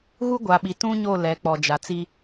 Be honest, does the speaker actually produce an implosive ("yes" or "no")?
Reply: yes